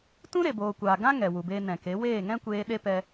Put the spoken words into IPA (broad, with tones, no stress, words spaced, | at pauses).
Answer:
tũ˦ɾe˨boː˨kʷaː˨ ɡã˦ ŋɛ˨wu˨beː˧ nɛ̃˨ke˨˦ weː˦˨ŋɛ̃˦kʷeː˧ ɗe˦pɛ˧